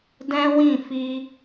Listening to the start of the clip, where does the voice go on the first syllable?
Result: high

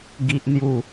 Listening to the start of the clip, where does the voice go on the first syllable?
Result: high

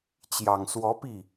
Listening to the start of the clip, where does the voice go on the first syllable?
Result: low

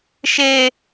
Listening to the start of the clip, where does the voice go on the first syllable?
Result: high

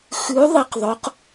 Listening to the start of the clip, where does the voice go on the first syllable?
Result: rising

